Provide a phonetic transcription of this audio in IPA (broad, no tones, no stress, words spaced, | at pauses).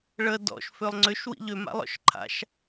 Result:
ɭə dɔ̰ʃ følˠŋ͡ǀʏʃ wḭʎø ma̰lˠɔ̰ʃǃʰa̰ʃ